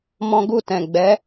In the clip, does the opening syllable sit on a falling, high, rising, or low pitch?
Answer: high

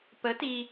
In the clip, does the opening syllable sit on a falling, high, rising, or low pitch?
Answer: rising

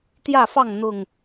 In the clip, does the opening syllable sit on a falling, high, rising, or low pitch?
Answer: falling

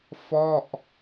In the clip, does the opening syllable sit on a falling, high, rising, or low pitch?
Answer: falling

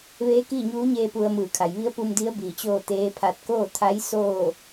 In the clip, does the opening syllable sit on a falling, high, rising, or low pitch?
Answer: rising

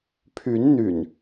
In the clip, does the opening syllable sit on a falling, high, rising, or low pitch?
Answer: rising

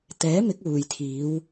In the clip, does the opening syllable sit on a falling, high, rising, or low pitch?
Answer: rising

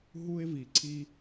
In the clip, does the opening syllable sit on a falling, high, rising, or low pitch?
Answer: high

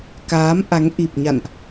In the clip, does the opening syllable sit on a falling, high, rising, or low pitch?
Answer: rising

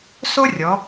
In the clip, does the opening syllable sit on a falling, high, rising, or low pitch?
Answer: high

